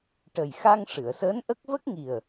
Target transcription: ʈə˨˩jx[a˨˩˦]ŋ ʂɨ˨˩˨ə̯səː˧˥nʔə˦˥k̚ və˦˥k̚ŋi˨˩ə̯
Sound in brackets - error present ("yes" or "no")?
yes